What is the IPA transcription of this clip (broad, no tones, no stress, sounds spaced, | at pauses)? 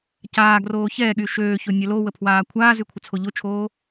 c aː ɡ r oː ç ɛː ɠ y ʃ øː ç o nʲ œ l o w ə pʰ w aː kʷʰ aː z y kʷʰ ə t͡sʰ o ʎ o t͡ʃʰ oː